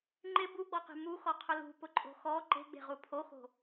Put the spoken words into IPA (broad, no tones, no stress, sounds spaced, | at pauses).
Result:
ŋ͡ǃ ɪ b u ɡ͡b ɔ q e̤ m u x ɔ qʰ ʊ l ṳ p ʊ ǃʼ o̤ x ɔ ǃ e̤ ɡ͡b e̤ ʁ u pʰ o x o̤